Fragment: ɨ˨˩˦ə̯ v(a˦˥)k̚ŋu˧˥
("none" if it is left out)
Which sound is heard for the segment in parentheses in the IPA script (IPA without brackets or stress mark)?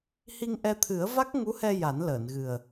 a˦˥